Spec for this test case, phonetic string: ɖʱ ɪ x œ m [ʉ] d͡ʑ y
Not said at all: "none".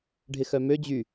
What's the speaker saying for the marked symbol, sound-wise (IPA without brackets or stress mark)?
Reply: ø